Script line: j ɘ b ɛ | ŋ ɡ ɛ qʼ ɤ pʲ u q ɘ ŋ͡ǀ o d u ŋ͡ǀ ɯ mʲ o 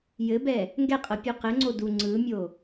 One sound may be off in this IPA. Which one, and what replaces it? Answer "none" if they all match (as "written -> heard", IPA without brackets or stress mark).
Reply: none